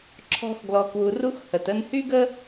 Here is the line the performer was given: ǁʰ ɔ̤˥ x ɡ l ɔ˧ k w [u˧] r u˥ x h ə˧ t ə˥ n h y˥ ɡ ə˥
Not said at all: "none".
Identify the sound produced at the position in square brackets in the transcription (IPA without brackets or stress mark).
u˧